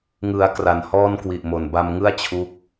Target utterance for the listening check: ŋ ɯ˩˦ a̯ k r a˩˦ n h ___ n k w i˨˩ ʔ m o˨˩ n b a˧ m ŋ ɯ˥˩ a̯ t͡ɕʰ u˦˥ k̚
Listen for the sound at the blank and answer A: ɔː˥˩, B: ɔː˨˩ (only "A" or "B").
A